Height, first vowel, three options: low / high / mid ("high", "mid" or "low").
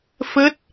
mid